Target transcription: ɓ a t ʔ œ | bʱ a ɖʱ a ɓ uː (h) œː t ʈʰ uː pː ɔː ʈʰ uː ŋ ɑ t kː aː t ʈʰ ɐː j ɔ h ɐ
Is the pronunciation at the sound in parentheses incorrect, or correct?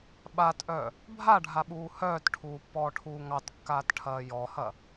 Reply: correct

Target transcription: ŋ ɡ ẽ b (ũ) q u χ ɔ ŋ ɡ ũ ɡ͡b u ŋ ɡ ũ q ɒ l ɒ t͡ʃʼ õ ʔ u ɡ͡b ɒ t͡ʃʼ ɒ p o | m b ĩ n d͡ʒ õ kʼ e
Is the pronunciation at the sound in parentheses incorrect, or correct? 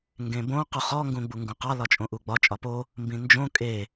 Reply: incorrect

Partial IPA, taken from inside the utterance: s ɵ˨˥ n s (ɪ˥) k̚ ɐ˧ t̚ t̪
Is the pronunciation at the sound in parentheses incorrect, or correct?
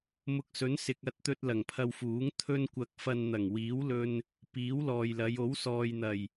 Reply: incorrect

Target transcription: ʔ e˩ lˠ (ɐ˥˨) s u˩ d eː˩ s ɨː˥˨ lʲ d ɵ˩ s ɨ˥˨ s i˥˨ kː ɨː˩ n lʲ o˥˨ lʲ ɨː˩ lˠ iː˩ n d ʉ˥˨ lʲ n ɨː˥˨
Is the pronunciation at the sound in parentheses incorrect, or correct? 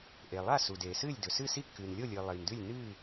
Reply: incorrect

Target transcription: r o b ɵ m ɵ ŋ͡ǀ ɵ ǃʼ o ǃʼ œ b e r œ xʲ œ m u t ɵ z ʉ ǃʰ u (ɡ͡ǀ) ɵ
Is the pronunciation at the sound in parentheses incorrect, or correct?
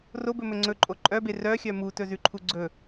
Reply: correct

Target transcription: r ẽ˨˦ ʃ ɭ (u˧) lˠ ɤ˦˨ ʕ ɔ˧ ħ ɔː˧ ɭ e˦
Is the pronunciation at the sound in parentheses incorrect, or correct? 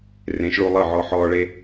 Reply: correct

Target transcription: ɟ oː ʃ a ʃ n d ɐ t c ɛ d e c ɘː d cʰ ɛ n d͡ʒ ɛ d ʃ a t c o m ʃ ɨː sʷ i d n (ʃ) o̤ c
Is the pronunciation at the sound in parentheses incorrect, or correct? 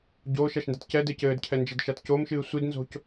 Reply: incorrect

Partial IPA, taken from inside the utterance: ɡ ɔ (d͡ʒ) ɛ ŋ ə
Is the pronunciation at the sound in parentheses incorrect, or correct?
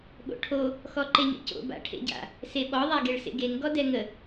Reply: incorrect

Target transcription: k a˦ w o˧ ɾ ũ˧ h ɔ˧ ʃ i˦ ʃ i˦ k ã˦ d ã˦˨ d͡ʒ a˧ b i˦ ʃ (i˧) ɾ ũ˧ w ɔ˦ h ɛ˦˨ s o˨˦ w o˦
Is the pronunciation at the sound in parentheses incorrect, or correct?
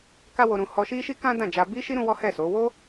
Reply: incorrect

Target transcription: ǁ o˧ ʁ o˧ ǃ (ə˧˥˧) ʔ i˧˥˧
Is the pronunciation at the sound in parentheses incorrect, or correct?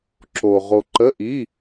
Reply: correct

